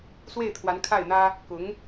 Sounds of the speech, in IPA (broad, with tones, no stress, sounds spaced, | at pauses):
s w e˥˩ ɪ̯ t̪ʰ w a˧˥ n kʰ a˥˩ ɪ̯ n̪ ä˥ | k ʊ˧˥ ŋ